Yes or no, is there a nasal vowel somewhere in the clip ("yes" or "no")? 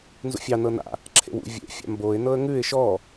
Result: no